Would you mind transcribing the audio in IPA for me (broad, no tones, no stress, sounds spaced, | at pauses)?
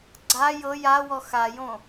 ɡ͡ǀ a j ɤ j a w ɔ x a j õ